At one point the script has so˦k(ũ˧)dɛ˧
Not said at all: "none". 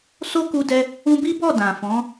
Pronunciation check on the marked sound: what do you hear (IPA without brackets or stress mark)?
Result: u˧